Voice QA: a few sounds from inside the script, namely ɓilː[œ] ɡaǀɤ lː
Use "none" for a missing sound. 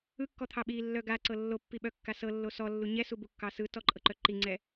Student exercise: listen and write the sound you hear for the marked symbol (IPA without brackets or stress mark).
œ